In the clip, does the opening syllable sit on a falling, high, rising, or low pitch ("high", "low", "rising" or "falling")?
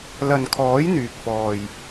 low